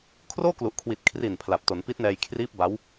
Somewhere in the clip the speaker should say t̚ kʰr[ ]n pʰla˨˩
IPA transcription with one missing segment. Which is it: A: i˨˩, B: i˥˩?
A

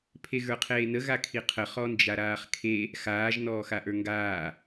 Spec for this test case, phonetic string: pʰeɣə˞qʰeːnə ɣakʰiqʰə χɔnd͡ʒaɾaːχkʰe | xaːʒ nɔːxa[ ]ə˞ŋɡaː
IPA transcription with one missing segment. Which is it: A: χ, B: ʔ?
B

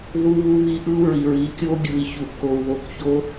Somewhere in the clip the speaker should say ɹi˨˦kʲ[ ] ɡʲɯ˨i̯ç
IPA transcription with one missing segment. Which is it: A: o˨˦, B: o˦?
B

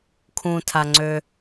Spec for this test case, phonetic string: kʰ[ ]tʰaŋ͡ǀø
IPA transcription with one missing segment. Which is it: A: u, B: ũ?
B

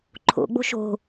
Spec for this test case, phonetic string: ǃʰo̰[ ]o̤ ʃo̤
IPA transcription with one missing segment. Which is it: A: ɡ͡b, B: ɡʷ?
A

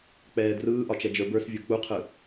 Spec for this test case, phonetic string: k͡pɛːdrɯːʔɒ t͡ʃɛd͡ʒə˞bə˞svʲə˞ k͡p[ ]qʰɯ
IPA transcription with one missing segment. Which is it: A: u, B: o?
A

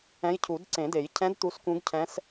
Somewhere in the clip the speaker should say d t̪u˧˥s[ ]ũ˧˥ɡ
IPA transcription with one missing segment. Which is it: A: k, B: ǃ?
A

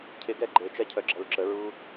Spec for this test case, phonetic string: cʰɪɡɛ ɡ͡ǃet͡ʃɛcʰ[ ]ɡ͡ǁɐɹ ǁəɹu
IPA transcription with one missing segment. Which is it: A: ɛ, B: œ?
B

